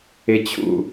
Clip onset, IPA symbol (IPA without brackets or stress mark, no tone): ɪ